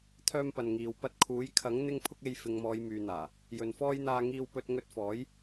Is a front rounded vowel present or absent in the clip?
present